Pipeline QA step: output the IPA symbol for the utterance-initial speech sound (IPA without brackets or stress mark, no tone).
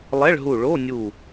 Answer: lˠ